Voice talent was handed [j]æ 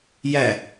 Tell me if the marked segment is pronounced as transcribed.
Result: yes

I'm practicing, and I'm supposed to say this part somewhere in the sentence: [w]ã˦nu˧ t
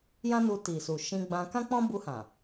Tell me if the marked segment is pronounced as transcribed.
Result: no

